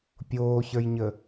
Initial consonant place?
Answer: labial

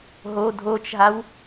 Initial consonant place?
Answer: glottal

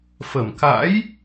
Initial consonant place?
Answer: labial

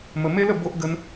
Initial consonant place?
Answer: labial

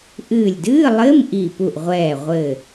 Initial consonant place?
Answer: glottal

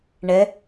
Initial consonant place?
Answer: retroflex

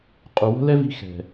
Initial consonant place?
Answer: uvular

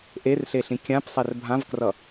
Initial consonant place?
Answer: glottal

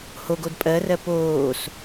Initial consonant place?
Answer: glottal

